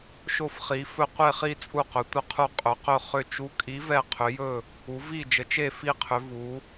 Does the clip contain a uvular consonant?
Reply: yes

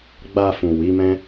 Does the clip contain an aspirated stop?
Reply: no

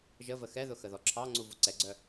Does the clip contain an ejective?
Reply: no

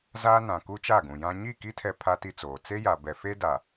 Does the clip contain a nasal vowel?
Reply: yes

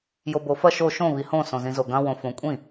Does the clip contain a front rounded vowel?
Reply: no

